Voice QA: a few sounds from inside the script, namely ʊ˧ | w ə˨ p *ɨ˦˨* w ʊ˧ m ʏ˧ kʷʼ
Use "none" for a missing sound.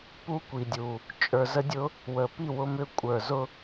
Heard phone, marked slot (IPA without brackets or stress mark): i˦˨